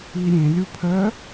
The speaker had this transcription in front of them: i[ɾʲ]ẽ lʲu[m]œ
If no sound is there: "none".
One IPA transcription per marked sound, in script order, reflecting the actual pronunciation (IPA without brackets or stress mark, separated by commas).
ɾʲ, pʰ